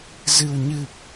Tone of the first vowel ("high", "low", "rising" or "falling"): low